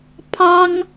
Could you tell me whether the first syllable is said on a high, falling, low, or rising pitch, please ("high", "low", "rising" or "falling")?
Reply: high